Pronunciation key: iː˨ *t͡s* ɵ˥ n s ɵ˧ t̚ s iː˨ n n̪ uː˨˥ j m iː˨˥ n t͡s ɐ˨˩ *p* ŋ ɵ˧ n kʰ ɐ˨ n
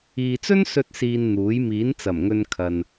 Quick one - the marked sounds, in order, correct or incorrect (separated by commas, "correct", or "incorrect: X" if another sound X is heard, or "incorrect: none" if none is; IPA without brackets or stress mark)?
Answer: correct, incorrect: m